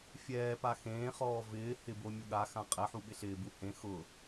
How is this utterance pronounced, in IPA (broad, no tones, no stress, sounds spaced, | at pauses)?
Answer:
fʲ ɛː p a x ẽː χ ɔː v ɪː h ɪ b o mʲ u ɠ a x ã qʼ ɛ ħ u ɓ ɪ ɬ ɪː b u h ẽ x ʊ